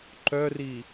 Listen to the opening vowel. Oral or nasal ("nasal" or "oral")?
oral